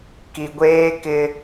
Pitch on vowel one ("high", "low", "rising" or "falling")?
low